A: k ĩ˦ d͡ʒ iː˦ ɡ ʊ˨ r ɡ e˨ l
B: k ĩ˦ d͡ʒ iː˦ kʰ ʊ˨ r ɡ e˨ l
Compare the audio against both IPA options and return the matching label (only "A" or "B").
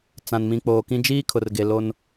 B